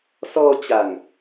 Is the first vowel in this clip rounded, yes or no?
yes